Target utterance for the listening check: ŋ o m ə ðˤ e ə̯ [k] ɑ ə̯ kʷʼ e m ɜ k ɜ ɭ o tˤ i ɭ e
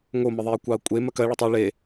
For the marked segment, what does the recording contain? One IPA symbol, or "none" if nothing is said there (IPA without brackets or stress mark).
kʷ